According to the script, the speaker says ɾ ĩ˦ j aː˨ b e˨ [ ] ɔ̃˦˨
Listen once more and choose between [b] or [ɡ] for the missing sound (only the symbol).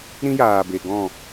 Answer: ɡ